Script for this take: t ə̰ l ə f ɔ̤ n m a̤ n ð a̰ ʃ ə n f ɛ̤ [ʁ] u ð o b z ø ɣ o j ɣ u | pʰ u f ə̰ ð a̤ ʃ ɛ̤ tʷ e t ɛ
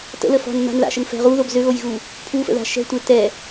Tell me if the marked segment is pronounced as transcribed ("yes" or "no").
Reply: yes